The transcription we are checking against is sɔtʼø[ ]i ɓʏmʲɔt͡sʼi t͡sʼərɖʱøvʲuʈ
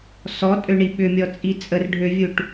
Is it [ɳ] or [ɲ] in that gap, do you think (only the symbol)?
ɳ